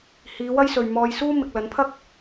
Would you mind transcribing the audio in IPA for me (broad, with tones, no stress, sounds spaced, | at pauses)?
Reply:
h iː˨˧ w ɐ˥ j s ɵ˨ ɥ m ɔː˧ j s uː˥ m ɪ˨ k̚ l ɐ˨˥ n pʰ ɐ˥ k̚